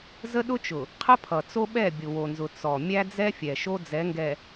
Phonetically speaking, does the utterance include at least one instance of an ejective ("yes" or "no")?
no